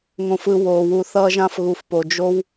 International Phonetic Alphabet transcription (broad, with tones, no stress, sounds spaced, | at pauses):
ŋ õ˧ f ɯ˧ w oː˨ w u˧ θ ʌː˧ ʒ ã˧ f ɣ u˨ f p o˨ d͡ʒ o˦ w